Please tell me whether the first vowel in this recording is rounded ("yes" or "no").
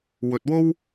yes